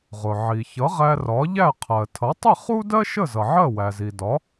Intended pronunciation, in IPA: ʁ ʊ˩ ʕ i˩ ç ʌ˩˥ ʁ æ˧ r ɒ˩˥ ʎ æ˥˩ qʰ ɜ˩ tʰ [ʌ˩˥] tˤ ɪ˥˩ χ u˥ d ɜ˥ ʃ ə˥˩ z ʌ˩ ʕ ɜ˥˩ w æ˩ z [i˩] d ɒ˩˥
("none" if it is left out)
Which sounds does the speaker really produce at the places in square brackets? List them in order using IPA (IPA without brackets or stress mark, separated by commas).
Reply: ʌ˩˥, i˩